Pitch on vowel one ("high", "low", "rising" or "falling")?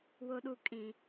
low